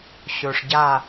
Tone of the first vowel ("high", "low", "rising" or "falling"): low